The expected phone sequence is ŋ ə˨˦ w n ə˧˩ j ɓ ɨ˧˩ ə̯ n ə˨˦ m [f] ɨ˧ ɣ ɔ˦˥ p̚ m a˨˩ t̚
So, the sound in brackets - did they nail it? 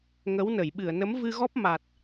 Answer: no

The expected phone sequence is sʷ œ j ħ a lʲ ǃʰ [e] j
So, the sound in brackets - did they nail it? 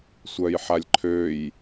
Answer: no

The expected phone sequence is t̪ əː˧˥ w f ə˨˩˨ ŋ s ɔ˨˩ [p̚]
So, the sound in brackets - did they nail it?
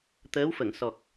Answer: no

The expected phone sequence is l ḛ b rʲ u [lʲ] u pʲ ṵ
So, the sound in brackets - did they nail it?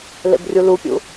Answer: no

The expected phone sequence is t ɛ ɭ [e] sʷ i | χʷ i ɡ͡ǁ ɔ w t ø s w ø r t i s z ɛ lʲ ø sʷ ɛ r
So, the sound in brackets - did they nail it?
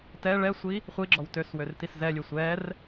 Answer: no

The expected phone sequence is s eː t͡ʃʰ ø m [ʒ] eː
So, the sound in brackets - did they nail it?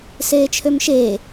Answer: no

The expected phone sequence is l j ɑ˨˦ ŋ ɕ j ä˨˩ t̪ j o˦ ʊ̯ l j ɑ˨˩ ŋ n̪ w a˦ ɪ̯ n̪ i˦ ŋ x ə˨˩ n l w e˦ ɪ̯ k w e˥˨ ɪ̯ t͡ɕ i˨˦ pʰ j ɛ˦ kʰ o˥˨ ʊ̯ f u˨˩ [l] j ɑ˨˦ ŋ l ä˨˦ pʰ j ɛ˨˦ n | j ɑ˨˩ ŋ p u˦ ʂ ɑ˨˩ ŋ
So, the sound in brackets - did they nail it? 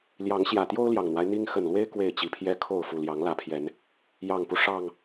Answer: yes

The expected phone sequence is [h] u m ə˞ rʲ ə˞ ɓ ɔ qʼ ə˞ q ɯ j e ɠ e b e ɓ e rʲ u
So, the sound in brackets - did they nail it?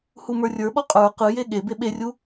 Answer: yes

